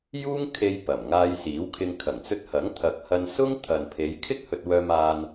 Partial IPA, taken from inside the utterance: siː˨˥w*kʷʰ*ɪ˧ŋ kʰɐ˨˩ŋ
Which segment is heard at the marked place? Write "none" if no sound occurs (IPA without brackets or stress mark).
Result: kʰ